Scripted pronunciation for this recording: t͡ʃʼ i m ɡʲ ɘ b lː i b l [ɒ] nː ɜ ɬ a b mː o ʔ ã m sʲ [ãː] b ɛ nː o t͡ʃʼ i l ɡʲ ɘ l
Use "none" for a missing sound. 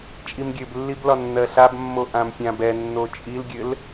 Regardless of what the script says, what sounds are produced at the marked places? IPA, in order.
ɒ, ã

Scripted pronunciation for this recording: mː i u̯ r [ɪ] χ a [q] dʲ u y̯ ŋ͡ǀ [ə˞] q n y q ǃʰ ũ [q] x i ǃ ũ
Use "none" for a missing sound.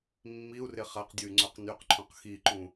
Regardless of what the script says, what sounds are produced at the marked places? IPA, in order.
ɪ, q, ə˞, q

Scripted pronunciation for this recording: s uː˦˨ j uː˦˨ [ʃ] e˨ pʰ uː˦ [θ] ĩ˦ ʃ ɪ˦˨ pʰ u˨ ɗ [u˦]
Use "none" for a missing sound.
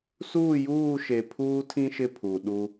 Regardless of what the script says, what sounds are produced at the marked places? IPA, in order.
ʃ, tʰ, u˦

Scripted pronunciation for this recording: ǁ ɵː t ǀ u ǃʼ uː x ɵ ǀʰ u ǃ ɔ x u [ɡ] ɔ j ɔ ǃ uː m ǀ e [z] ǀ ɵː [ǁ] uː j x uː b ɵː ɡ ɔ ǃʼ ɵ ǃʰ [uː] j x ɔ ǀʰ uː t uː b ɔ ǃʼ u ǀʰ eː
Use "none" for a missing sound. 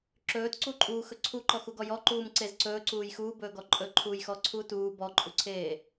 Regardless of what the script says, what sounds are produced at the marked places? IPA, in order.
ɡ, z, ǀ, uː

